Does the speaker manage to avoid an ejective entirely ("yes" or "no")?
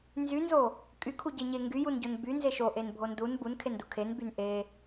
no